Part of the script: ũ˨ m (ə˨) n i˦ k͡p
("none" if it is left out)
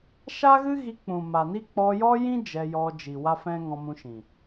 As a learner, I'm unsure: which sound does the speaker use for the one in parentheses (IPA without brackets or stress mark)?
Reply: a˨